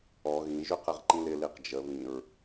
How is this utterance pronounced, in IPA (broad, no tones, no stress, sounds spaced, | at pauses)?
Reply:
ɔ ɣ ĩ ʒ ʉ q ɛ ʁ ǃ ĩ l ɪ l i q d͡ʒ ə β ĩ ɹ